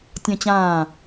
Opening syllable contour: high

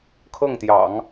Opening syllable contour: falling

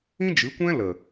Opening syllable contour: high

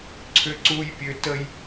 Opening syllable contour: high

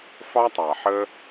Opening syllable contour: high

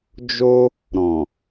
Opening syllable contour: high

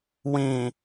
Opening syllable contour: low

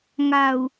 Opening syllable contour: low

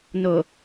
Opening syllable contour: low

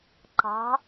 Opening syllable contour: rising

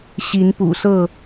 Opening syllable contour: rising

